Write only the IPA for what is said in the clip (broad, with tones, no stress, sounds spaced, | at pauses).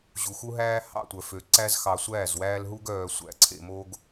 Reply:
ʑ u˨ x u˧ ɦ æː˧ h ɑ̰˦˨ tʷ œ˨ f ø˨ ǀ æ˧ z x ɑ˨ sʷ æː˦˨ z w æː˧ l ɦ u˧ ɡ œː˨ sʷ æ̰˨ ǀʰ ḛ˨ m oː˧ ɡ